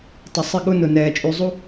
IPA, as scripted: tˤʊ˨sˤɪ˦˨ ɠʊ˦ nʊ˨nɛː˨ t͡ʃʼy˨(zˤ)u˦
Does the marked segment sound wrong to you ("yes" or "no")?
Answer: no